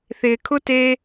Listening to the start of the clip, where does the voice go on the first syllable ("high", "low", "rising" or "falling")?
low